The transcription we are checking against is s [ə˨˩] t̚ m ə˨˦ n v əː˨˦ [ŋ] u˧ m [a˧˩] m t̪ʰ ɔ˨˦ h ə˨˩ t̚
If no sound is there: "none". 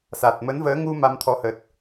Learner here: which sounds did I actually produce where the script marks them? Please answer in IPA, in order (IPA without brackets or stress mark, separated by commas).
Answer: a˨˩, ŋ, a˧